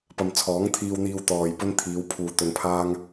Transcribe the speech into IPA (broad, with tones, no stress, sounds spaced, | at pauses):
p ɐ˨ m t͡sʰ ɔː˨˥ ŋ t̪ʰ iː˧ w n̪ iː˧ w t̪ ɔː˨ j p ɵ˥ n t̪ʰ iː˨˧ w pʰ uː˧ t̪ ɵ˧ n pʰ aː˥ ŋ